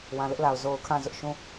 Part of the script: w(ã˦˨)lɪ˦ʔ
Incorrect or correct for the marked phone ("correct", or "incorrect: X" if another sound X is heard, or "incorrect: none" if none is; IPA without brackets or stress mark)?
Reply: incorrect: ã˨